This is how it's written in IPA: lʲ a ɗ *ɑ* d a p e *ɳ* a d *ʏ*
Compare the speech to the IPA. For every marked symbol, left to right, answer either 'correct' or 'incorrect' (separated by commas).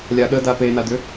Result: incorrect, incorrect, correct